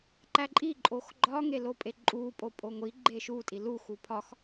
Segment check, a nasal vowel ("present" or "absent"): absent